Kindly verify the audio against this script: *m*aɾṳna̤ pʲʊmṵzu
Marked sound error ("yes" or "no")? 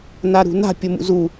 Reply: yes